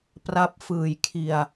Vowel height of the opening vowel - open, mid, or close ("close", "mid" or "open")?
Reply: open